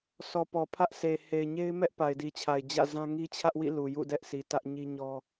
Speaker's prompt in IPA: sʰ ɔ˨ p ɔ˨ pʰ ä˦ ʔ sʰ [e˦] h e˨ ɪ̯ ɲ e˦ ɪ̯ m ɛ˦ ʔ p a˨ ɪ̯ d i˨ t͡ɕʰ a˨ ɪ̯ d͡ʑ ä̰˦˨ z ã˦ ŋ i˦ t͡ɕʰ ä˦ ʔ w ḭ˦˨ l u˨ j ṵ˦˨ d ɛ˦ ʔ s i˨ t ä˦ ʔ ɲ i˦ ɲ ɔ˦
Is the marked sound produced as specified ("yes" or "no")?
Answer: no